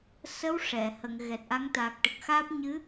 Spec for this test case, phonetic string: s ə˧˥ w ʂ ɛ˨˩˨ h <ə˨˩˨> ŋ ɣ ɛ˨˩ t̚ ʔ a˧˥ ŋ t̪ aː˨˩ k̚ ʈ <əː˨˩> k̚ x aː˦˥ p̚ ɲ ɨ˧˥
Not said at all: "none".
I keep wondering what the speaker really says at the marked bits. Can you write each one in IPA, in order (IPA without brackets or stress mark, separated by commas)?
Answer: ə˨˩˨, ə˨˩